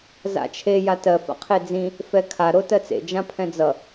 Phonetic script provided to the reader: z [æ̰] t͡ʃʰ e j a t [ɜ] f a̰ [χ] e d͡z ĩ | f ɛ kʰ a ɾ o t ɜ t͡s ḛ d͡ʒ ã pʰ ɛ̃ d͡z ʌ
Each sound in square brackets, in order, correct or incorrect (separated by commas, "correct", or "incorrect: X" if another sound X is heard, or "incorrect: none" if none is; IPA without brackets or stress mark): incorrect: a̰, correct, incorrect: qʰ